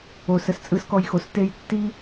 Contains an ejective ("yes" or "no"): yes